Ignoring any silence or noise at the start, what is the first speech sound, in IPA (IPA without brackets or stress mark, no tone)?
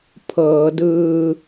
pʰ